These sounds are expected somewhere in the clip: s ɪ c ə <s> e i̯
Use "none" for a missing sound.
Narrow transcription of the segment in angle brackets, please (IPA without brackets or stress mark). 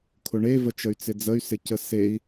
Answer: s